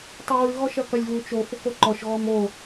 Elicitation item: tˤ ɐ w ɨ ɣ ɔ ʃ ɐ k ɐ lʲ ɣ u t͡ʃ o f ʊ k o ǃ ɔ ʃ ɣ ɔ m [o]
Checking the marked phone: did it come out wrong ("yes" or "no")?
no